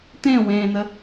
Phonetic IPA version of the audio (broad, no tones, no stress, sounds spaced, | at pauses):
t̪ ẽ w ẽː n̪ ə